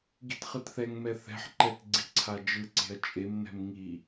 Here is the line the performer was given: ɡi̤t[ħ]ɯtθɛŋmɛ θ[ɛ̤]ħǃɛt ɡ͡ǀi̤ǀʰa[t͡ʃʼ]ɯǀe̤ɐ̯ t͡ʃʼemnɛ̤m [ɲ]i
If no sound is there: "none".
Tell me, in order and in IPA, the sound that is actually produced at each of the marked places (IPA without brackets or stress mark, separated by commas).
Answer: χ, ɛ̤, d͡ʒ, ŋ